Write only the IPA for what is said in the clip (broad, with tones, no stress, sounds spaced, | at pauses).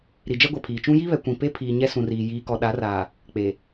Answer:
ɾ i˨ d͡ʒ ɛ˦ ɡʷ ɛ˨ pʰ iː˨ t͡ʃ ũ˦ j i˦ β ɛ˨ kʷ ĩ˨ p e˦ pʰ iː˨ ɲ ɛ˦ s ũ˨ r iː˨ j iː˨ k ɔ˨ ɗ a˨˦ r aː˨ | k͡p e˨